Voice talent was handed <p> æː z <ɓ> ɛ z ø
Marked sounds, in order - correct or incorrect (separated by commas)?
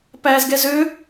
correct, incorrect